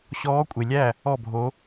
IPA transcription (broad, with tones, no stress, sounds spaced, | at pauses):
ɕ ɔː˧˥ kʷʼ e˨ lʲ æ˥˨ | ɔ˥˨ bʱ o˧˥